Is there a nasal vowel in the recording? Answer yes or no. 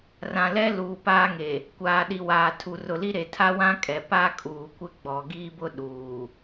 yes